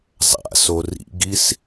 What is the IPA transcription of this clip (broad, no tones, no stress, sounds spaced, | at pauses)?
zˤ a̰ s o r ḭ ɡ i s